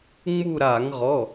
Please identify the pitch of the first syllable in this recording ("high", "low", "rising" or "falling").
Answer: falling